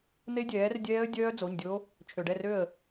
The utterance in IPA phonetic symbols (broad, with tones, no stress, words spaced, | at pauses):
n̪e˦˥dʲɛː˩˥rdʲɛː˦˥ə̯ dʲœː˦˥d͡zo˩˧˩ɲdʲo˦˥ | t͡ʃʰø˩ɖɛ˥˩rø˥˩ə̯